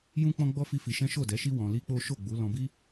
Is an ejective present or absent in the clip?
absent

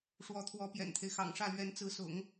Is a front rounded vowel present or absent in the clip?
absent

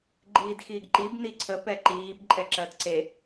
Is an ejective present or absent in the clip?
present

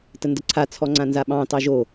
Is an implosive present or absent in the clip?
present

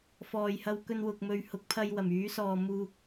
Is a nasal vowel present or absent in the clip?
absent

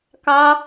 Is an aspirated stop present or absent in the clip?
absent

